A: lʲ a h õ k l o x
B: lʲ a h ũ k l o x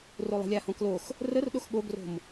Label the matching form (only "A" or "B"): A